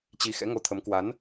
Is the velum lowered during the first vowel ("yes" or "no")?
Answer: no